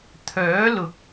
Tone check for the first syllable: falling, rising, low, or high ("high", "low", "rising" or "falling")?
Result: rising